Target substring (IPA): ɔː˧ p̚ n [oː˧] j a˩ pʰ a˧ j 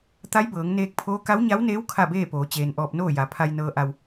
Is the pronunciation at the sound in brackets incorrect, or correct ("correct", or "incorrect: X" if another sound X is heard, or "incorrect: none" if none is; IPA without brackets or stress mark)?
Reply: incorrect: oː˥˨